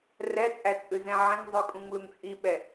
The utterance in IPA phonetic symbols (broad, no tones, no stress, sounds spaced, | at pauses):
r ɛ t͡sʼ æ t͡sʼ ʉ z ɛ̃ ʕ ɛ̃ ŋ zˤ ʉ kʼ ũ ŋ l u ŋ t͡sʼ i ɓ ɛ